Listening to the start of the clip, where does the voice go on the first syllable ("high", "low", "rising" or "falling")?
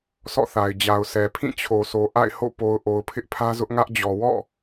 falling